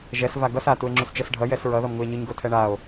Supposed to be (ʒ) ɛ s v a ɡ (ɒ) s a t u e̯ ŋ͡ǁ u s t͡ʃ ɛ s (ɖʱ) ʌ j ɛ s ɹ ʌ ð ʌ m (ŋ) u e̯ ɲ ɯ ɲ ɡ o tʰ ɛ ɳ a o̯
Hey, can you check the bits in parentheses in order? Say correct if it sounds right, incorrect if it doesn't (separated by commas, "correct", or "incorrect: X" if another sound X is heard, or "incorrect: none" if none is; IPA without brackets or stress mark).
correct, incorrect: ʌ, correct, correct